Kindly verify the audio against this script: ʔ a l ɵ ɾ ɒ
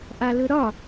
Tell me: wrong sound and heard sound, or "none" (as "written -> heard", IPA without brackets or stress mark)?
none